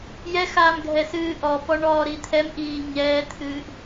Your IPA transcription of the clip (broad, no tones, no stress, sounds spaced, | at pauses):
j ɛ x aː m ɡʱ ɛ s ɨː ʔ ɔ p ɔ ɳ ɔː ɾ i t̪ʰ ɛ m ʔ iː ɲ ɛː t̪ʰ ɨː ʔ